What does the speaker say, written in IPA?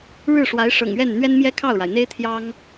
ɻ ɻ̩˥˩ ʂ w a˧˥ ɪ̯ ʂ ɤ̰˨˩ ŋ ɥ ɛ˥˩ n n̪ ɥ ɛ˥ n m j ɛ˥ kʰ ɑ˥˩ ʊ̯ ɻ a˩ ɪ̯ n̪ e˥ ɪ̯ t̪ʰ j ɑ˥ ŋ

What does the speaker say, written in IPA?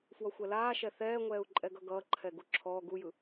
f w ʌ xʷ ɛ l aː ʃ ɛ θ ɛː ŋʷ ɛː u̯ ǃʼ ɛ ɡ ʌ ɡ ʌː ǃʰ ɛ ɡ u ǁʰ ɔː ɡ u j ɯ

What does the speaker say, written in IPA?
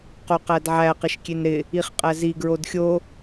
q o q æ d ʕ æ q ɪ ʃ kʲ e n ɾ ɪ | i χ qʼ æ z i ɡ ɹ o d xʲ o

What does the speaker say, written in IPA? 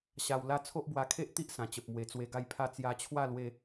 ɕ a˧ w l a˦ t͡sʰ o˦ ʔ b w a˧ kʰ e˦ ʔ t̪ i˦ ʔ s ã˨˩ t͡ɕ ə˨ p̚ m w e˨˩ t͡s w e˧ ɡ a˥˧ j pʰ a˥˧ t͡s j a˧ t͡ɕʰ w a˥˧ l w e˧

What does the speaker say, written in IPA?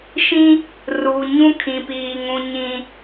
ʃ ĩ˦ | r u˨ ɲ ũ˦ kʰ ĩ˨ p iː˨ ŋ ũ˨ ɲ ĩ˨

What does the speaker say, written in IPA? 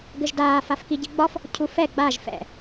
ɡ ɘ ʒ d aː f a f k i ɟ i ɡ͡b ɒ f | cʰ u f ɛ ɡ͡b a ʒ f ɛ̰

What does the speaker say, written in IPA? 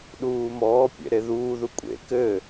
ɗ uː m ɔː pʲ ḛ ɾ e ð uː ð u kʷʼ ḛ k ɘ

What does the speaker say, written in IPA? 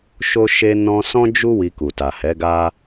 ʃ o˦ ʃ e˧ n ɔ̃˧ s ɔ̃˦ d͡ʒ u˦ w i˧ k u˨ t a˨ h ɛ˨˦ ɡ a˦

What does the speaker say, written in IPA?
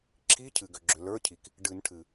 ǁʰ i˧˥˧ cʰ ɨ˩ ɡ ʏ˩ ɡ͡ǁ ʏ˩ l ə˞˧˥˧ cʰ i˩ k | ɖ ɨ˨˩˦ n ʈʰ ɨ˩

